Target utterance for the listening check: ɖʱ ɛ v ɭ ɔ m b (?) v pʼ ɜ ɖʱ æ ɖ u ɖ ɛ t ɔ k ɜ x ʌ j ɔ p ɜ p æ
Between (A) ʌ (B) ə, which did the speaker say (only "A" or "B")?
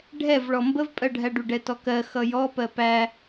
B